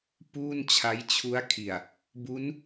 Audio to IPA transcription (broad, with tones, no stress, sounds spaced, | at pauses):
p uː˥˩ n t͡ɕʰ a˦˥ j t͡ɕʰ u˦˥ a̯ kʰ i˨˩ a̯ | b u˦˥ n